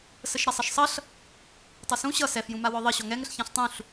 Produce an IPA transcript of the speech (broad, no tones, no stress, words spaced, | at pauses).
səʃɾasˤʌʃsˤʌɬ | tˤʌsũ ɕʌ sɛfjũma wɔðˤʌ ɕɔŋɛŋəɬ çãɬtˤũɬ